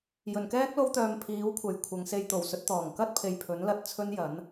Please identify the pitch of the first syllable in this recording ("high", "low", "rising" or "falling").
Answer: low